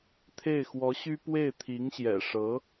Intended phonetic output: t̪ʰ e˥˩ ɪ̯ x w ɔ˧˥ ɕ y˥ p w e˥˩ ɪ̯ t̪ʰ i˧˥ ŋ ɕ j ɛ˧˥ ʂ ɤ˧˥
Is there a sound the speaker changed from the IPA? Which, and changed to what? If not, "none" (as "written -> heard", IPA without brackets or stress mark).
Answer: ɛ˧˥ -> ɛ̰˨˩